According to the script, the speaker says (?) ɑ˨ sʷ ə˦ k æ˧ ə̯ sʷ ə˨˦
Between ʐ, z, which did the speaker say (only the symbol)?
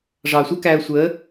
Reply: ʐ